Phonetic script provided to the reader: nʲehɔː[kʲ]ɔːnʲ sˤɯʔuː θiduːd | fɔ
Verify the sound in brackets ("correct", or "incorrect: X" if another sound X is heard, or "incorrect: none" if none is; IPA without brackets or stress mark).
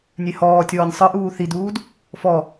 incorrect: tʲ